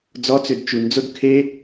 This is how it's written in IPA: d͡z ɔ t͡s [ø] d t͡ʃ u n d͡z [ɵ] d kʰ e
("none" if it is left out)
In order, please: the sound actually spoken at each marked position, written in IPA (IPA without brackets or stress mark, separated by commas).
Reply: ø, o